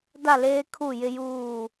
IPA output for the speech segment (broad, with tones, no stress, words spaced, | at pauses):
da˦˨leː˦ kʰu˦˨jɪ˦juː˦˨